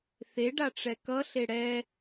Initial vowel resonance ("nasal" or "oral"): oral